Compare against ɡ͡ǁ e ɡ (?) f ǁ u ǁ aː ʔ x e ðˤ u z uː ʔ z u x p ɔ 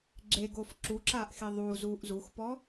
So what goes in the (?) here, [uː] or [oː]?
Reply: oː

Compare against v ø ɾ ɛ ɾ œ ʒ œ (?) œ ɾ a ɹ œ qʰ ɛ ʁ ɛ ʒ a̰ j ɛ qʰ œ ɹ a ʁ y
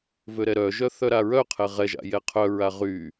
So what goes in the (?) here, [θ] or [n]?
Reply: θ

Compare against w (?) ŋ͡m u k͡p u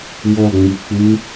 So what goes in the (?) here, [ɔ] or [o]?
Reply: ɔ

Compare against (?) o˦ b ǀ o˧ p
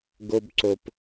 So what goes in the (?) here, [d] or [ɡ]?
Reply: ɡ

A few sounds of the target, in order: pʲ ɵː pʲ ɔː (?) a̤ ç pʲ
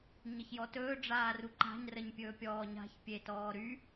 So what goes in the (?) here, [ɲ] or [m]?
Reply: ɲ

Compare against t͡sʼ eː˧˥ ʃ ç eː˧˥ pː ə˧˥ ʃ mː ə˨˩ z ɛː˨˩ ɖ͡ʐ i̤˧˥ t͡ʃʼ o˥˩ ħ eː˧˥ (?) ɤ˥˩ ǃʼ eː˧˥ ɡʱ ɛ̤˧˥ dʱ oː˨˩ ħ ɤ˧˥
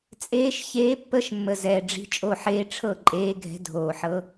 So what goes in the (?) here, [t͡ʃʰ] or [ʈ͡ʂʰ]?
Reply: ʈ͡ʂʰ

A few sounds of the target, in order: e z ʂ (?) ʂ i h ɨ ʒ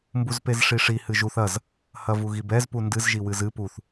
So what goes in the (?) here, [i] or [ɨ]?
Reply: i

